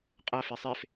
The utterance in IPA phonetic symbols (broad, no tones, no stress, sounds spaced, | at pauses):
qʼ a f e sˤ e f